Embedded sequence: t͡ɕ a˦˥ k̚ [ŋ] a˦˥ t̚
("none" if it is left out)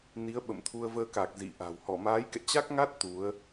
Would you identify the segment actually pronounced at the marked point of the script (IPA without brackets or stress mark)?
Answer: ŋ